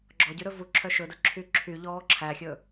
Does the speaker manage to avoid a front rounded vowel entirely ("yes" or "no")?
no